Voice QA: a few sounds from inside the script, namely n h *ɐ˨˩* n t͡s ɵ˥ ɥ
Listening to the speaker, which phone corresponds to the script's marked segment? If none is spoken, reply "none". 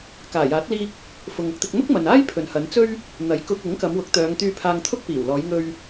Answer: ɐ˨˧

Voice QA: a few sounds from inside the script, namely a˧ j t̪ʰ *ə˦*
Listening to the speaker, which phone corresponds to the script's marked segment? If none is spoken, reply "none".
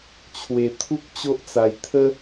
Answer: ə˦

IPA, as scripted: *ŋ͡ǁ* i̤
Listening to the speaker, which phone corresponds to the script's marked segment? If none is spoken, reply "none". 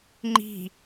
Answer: ŋ͡ǃ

